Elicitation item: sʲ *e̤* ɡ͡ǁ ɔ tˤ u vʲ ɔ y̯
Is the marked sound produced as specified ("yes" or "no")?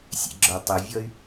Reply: no